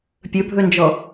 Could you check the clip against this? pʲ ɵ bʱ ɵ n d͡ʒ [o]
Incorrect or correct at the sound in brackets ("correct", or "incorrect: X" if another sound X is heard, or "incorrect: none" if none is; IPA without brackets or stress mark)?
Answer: incorrect: ɔ